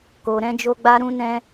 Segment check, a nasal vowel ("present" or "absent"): present